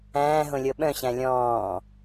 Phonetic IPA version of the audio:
æ̃ː ɦ õ lʲ ɤ ɓ œ̃ ɕ æ̃ lʲ ɔ̃ː

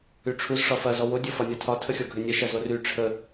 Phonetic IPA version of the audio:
y ʈ͡ʂʰ u z ʂ ɒ f ɐ z ɔ w o dʲ o f ɒ nʲ ɒ tʰ ɒ tʰ ə xʲ ɔ ɡʱ ɘ nʲ ə ʃ ɐ z o r y ʈ͡ʂʰ ə

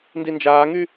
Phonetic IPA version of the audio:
n d i n d͡ʒ aː ŋ y

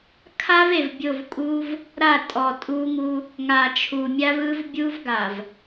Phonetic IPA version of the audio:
kʰ a˦ v e˨ v bʲ o˦˨ v kʼ u˦ v | ɾ a˦˨ tʼ ɔ˨ tʼ u˦ ŋ u˦ | ŋ a˨ t͡ʃʰ u˨ mʲ a˦ v ɯ˦ v bʲ u˦ v ɡ a˨ v

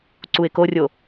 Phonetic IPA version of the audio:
ǀ u ɪ̯ k o rʲ o

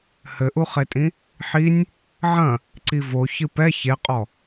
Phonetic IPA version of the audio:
h ɘ ʔ u χ e tʼ ĩ | ħ i nʲ | ʕ ɐ̃ | ǀ i v o ç ɨ p ɛ ç e qʼ ɔ

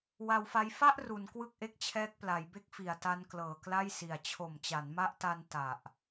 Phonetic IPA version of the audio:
w a˧ w f a˦˥ j f a˥˩ ʔ r u˩˦ n k w ɯ˥˩ k̚ ʔ e˥˩ k̚ t͡ɕʰ ɛː˦˥ k̚ p l a˩˦ j b e˦˥ k̚ f i˩˦ a̯ t a˦˥ n k l ɤː˨˩ k l a˥˩ j s i˨˩ a̯ t͡ɕʰ o˨˩ m t͡ɕ a˩˦ n m a˦˥ ʔ t a˧ n t a˨˩ ʔ

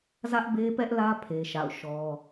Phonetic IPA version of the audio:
z ä˦ ʔ b e˦ p ɛ˦ ʔ l ä˦ pʰ e˦ ʃ a̰˦˨ ʊ̯ ʃ ɔ˦

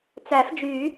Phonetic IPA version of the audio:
t͡s æ˨˩˦ f d͡ʒ y˨˩˦

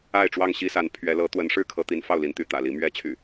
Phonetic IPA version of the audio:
a˥˨ ɪ̯ ʈ͡ʂ w ɑ˥˨ ŋ ɕ i˦ s a˨˦ n pʰ ɥ ɛ˨˦ l ɤ˨˦ t̪ w ə˨˦ n ʂ ɻ̩˦ kʰ ɤ˨˦ t̪ i˨˦ n f ɑ˥˨ ʊ̯ l i˨˦ n t̪ y˨˦ t̪ ä̰˨˩ l i˨˦ m ɥ ɛ˨˦ t͡ɕʰ y̰˨˩

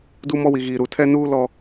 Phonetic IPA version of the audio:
d u˦ m ɔ˦ w i˨ ɣ iː˨ ɾ u˨ tʰ ɛ˦ n uː˦ l ɔ˦

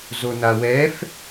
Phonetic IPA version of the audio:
z o n a w ɛ f

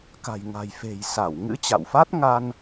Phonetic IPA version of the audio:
k a̤˨˩ j ŋ a̤˨˩ j f e̤˨˩ j s a˧˩ w ŋ ɨ̰˧˥ t͡ɕ a̰˧˨ w f a˦˥ t̚ ŋ a˧ n

